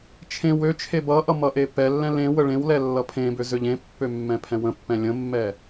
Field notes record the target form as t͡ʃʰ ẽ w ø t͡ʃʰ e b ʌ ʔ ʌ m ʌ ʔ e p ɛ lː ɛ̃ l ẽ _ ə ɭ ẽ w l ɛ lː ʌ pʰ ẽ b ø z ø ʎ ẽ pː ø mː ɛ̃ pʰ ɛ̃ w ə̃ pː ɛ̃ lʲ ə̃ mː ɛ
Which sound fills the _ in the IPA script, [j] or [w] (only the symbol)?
w